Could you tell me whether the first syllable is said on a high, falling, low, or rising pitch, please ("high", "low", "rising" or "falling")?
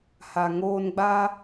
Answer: low